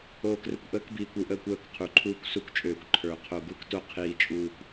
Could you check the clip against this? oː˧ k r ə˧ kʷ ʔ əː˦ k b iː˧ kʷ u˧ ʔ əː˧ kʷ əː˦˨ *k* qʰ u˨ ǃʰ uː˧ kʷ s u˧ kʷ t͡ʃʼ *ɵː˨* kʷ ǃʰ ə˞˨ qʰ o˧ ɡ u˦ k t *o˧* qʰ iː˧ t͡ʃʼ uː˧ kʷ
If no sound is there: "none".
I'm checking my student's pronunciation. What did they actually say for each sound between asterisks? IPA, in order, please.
k, øː˨, o˦

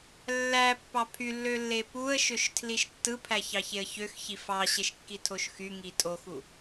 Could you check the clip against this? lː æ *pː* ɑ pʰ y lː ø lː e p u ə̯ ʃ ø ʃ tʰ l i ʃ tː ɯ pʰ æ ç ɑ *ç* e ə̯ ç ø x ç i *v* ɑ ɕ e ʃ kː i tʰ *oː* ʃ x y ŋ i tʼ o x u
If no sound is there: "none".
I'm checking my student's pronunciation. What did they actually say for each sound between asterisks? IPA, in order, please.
pː, ç, f, o

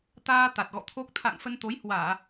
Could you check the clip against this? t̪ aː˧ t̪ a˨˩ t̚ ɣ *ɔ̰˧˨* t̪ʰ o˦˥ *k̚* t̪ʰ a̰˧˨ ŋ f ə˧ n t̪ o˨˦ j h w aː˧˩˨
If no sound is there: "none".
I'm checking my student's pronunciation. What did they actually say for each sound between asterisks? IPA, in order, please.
ɔ̰˧˨, k̚

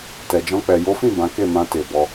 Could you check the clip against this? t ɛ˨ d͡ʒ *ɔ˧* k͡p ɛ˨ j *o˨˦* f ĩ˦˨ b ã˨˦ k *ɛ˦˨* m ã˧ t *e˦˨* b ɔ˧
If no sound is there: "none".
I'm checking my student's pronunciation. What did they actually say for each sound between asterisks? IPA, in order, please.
ɔ̃˧, o˨˦, e˦˨, e˨

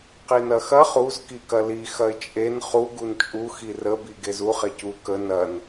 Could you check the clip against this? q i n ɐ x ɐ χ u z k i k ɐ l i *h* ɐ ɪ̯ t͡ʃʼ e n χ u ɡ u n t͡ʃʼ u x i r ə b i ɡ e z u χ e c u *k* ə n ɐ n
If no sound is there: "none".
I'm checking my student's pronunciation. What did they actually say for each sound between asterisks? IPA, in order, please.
x, k

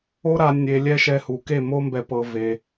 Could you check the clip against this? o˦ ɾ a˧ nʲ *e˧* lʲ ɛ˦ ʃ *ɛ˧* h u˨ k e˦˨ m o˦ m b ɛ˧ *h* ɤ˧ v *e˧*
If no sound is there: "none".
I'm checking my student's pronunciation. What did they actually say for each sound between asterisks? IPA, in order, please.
e˧, ɛ˧, p, e˧

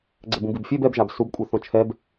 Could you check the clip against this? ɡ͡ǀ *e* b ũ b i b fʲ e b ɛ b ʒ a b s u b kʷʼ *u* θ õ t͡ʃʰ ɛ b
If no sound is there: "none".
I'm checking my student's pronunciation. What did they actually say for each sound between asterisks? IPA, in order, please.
ɛ, ɯ

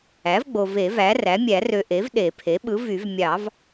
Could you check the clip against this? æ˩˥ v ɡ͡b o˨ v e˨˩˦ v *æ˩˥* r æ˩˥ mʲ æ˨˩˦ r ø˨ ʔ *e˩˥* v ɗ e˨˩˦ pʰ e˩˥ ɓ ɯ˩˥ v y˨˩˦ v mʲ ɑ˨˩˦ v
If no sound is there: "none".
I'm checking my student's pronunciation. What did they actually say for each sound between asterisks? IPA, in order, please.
æ˩˥, e˩˥

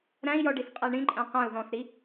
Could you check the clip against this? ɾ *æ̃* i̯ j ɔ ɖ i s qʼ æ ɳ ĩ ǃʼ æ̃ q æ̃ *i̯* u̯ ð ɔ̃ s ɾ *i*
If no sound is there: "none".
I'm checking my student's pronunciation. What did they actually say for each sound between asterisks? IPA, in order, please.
æ̃, none, i

